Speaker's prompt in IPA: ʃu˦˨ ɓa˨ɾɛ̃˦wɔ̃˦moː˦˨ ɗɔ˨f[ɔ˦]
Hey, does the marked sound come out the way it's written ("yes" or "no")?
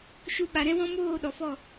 no